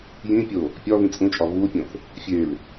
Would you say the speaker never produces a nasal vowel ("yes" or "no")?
no